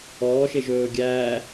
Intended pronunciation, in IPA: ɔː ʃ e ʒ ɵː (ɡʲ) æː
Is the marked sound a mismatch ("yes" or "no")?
no